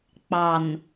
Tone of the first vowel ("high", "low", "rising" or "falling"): low